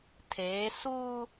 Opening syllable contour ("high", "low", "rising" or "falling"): rising